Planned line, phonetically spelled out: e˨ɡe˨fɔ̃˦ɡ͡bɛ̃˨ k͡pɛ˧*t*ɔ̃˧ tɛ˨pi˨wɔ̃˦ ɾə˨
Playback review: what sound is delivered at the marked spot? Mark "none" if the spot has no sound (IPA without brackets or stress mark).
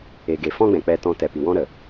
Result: t